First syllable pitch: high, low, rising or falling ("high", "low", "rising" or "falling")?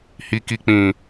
low